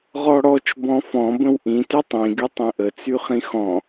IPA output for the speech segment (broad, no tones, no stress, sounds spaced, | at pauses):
ʁ ɔ ɽ ɔ t͡ʃ b ɔ̃ f ɔ̃ b ə̃ w ʔ ĩ t y tˤ ĩ ɡ y tˤ ĩ ʔ ə t͡s y χ ĩ x ɔ̃